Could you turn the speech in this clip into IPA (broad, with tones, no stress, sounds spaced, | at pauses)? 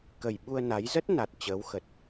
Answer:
k ə˨˩ j ɓ u˧ ə̯ n a˨˦ j z ə˦˥ t̚ n a˨˩ t̚ t͡ɕ əː˨˦ w x ə˨˩ t̚